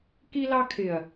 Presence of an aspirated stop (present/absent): present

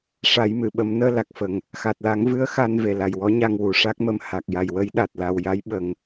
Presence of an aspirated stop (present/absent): absent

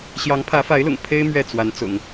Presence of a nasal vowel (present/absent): absent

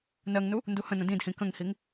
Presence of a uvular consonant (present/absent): absent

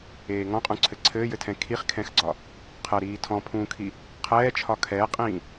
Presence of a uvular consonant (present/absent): present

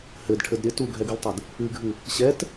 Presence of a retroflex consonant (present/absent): present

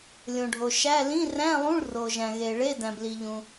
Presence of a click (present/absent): absent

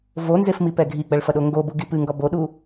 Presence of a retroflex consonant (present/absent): present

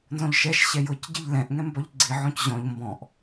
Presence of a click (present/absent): present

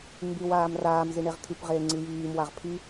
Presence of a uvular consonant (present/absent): present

